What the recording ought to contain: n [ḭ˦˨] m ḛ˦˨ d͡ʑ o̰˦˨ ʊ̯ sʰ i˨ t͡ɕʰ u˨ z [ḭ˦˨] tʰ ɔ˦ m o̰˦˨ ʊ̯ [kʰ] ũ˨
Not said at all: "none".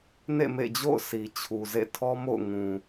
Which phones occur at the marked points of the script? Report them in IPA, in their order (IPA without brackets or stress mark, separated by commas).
ḛ˦˨, ḛ˦˨, ŋ